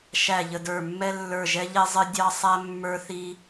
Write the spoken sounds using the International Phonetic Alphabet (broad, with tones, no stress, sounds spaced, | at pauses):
ʃ æ˦˨ ʎ ə˦˨ d ə˞˦˨ mː ɛ˥ lː ə˞˦˨ ʒ ɛ˥ ʎ ɛ˥ zˤ ɪ˥ dʲ ɑ˥ sˤ æ˥ mː ə˞˥ θ i˥